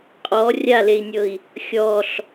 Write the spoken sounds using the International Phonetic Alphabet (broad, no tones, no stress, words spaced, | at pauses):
qʼɔ rʲalei̯nʲɤi̯ | xʲɔɬ